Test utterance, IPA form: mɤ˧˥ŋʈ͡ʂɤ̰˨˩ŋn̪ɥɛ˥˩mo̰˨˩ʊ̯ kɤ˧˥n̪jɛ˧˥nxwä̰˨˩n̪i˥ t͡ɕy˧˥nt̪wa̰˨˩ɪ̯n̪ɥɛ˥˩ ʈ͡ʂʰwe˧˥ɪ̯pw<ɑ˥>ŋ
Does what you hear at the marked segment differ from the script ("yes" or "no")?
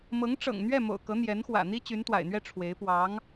yes